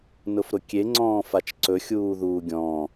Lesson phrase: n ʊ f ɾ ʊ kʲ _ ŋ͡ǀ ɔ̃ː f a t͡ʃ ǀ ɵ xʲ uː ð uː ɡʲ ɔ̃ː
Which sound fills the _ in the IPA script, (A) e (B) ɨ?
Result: A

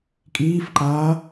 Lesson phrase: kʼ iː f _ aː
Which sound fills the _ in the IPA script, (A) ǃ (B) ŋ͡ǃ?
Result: A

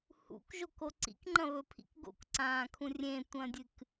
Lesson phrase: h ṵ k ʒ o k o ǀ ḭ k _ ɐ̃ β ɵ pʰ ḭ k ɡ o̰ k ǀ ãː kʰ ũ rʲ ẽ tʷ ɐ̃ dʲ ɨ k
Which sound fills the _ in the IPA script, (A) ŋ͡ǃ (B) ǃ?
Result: A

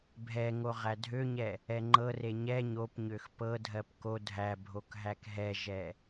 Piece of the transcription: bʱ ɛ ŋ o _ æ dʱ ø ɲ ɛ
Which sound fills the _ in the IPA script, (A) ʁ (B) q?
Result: A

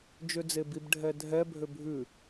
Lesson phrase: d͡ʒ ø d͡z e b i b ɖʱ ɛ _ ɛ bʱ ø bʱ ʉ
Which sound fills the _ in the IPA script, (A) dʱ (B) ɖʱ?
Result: A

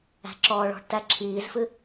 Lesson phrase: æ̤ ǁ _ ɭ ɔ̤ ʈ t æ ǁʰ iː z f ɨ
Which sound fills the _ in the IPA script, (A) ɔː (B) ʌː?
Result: A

